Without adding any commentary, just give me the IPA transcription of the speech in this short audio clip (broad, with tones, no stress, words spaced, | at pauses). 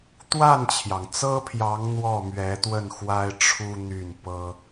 t̪wa˥˩nt͡ɕʰjɑ˩ŋt͡sɤ˥pʰjɑ˧˥ŋ n̪wɔ˥˩mɥɛ˧˥t̪wə˥˩n xwa˥ɪ̯ʈ͡ʂʰu˥n̪y˥˩n pɤ˥